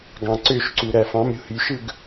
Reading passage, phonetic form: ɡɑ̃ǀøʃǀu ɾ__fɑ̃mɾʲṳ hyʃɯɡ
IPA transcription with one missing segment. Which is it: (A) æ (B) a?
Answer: A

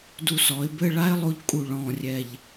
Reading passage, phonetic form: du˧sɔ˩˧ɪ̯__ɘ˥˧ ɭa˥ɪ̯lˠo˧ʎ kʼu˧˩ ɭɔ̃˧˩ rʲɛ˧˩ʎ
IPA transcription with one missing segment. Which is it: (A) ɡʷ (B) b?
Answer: B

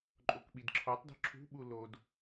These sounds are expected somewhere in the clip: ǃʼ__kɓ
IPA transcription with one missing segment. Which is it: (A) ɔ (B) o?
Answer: B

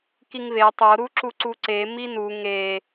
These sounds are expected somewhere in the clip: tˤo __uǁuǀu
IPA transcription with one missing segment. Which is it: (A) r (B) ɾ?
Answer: B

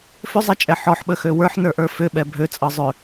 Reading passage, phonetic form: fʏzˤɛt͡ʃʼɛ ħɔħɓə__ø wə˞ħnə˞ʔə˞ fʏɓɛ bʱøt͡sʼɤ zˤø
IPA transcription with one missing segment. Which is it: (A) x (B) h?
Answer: A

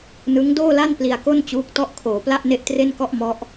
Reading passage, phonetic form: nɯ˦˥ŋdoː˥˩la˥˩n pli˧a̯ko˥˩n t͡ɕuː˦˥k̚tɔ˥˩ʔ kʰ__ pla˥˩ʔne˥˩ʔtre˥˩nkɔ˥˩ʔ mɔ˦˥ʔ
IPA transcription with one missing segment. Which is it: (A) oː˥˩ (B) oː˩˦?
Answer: B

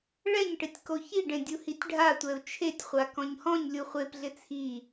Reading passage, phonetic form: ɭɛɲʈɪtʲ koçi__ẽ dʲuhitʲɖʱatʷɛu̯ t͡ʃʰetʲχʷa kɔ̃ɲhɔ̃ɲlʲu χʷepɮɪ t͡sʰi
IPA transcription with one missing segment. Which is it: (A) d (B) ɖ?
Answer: B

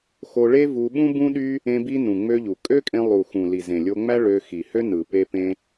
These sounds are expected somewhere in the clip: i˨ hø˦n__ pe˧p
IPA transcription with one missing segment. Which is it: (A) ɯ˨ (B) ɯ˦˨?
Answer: A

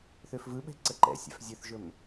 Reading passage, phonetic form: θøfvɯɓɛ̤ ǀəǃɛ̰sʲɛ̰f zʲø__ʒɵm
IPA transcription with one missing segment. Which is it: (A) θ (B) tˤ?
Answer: A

